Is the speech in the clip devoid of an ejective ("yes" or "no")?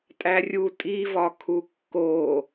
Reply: no